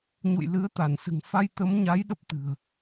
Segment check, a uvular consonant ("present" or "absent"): absent